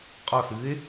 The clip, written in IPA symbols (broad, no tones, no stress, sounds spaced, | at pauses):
qʼ ɒ θ ɨː e̯